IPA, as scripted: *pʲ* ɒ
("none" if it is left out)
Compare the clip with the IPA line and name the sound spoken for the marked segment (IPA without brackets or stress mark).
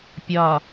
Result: pʲ